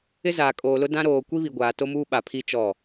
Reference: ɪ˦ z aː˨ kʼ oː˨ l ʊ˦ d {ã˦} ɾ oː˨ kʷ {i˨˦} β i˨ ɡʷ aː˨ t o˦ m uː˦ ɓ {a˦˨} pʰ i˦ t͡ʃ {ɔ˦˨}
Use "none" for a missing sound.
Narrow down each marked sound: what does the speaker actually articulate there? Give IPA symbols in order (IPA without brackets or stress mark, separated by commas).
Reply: ã˦, i˦, a˨, ɔ˦˨